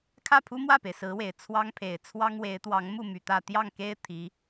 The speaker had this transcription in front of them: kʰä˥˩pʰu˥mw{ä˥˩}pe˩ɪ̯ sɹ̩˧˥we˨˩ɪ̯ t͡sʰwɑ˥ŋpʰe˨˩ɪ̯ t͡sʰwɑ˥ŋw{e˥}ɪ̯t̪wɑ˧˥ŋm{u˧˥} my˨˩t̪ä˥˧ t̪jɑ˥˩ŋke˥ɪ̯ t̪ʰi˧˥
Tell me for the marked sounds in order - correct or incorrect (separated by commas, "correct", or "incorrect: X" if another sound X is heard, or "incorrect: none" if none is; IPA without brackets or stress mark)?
correct, incorrect: e˧˥, incorrect: u˥˩